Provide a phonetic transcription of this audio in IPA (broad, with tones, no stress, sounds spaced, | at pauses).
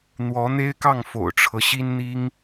n̪ w ɔ˧˥ n̪ e˥ ɪ̯ k ɑ˥˩ ŋ f o̰˨˩ ʊ̯ ʈ͡ʂʰ ɤ˦ ɕ i˥ n n̪ i˥ ŋ